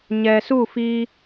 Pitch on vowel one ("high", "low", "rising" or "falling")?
low